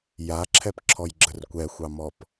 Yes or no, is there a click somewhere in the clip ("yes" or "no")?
yes